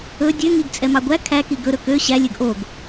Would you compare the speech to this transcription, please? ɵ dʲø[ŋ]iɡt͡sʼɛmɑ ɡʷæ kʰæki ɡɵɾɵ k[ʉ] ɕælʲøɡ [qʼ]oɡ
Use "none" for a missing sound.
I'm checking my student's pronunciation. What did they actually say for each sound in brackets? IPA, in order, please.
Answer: ŋ, ø, ʔ

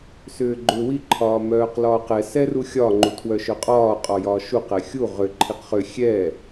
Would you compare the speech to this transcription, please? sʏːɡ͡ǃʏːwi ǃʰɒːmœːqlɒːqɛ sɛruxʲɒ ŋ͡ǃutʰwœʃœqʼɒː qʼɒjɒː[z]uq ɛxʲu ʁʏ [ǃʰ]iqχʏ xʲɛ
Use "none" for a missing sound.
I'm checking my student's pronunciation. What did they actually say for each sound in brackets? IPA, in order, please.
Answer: ʃ, ǃʰ

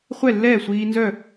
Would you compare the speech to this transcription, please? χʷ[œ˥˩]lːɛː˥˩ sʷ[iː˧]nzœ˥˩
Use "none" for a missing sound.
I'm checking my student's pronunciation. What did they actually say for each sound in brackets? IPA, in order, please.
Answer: ɛ˥˩, iː˧

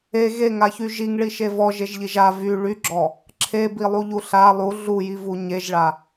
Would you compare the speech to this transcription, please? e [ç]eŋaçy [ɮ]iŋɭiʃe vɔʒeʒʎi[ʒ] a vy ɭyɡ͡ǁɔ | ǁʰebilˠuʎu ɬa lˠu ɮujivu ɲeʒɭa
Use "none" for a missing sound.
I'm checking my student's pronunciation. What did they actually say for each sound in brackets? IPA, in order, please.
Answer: ɣ, ʒ, ʒ

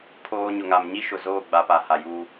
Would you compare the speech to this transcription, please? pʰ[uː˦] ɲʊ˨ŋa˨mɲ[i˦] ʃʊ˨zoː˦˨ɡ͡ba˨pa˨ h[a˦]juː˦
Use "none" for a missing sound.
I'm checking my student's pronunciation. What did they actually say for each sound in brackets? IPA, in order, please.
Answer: oː˦, i˦, a˨

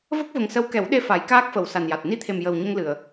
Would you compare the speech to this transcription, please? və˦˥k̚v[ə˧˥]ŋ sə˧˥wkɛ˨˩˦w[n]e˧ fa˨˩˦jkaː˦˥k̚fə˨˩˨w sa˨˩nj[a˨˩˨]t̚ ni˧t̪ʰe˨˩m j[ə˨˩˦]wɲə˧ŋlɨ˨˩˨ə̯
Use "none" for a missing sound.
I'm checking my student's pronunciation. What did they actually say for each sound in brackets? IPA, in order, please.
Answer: ə˨˩, ɗ, a˨˩, ə˨˩

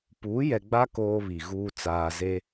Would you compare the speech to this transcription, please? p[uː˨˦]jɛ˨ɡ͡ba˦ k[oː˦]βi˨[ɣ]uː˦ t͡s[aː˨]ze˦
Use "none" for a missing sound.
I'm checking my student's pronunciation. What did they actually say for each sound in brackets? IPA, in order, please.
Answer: uː˨˦, oː˦, ɣ, aː˨

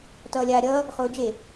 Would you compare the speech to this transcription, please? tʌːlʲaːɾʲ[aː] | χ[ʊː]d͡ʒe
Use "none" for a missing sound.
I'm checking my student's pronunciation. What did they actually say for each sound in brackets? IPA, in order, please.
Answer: ʌː, ʊː

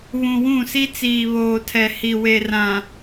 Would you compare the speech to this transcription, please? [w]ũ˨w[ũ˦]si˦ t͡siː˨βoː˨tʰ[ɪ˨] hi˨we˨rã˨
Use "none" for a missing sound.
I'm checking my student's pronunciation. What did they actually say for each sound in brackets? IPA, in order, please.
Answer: β, ũ˦˨, ɛ˨

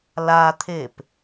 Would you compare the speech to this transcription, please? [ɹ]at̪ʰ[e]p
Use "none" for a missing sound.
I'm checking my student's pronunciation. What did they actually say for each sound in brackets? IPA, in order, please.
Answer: l, e

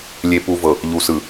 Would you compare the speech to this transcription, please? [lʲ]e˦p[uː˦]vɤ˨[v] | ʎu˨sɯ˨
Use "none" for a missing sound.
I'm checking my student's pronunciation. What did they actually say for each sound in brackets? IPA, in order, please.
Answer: lʲ, u˦, none

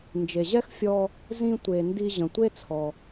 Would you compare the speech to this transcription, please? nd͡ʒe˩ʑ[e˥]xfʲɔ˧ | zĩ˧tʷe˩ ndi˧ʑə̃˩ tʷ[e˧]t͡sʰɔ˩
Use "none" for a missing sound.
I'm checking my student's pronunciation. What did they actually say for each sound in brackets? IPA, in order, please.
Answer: ɛ˥, e˥

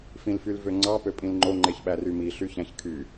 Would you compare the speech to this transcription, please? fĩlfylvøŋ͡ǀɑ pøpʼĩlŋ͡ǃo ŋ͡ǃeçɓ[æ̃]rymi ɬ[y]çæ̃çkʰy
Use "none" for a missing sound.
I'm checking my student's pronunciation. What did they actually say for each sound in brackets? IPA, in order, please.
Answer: æ, y

